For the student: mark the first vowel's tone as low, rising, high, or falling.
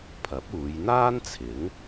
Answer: rising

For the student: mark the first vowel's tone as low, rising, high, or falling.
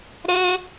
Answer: high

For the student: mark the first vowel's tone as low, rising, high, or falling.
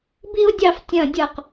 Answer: high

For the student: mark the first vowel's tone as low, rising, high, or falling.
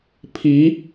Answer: rising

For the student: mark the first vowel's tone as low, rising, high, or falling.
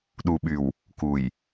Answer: low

